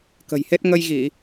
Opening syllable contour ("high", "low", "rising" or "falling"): low